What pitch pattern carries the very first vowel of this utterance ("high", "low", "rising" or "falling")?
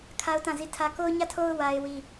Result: high